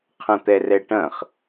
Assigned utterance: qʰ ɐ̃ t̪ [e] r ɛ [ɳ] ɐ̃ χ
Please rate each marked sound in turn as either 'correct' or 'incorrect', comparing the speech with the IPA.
incorrect: ɛ, incorrect: ʈ

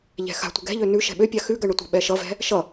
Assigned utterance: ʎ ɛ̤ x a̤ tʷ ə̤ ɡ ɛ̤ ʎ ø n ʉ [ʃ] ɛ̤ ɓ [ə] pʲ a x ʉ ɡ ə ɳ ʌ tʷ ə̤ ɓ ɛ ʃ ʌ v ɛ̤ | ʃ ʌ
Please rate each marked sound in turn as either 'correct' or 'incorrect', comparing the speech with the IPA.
correct, incorrect: ø

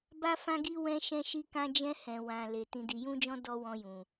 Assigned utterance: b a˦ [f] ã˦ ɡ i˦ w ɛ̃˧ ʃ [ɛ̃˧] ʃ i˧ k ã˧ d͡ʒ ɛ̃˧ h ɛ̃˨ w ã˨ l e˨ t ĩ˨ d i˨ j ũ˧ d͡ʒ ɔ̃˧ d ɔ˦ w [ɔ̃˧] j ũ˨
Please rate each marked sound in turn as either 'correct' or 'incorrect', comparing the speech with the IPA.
correct, correct, correct

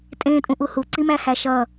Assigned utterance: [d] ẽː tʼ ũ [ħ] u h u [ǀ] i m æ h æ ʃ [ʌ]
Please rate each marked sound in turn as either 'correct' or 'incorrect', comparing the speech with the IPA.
incorrect: tʼ, incorrect: ʔ, correct, correct

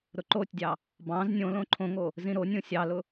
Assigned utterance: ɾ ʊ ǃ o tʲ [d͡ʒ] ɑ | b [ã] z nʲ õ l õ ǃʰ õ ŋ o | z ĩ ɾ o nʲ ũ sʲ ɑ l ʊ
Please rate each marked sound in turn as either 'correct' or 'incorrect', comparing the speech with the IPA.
incorrect: dʲ, incorrect: ɑ̃

